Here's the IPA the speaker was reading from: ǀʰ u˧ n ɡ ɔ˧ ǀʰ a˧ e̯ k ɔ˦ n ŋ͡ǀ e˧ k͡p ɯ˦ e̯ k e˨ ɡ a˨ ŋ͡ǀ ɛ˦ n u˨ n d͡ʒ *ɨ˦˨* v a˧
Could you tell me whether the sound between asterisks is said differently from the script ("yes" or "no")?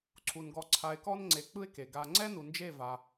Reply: yes